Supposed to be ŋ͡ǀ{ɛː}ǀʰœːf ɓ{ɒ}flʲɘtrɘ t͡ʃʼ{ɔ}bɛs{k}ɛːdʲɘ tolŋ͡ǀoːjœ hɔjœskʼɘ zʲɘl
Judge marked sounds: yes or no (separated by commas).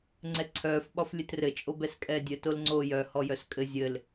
no, yes, no, no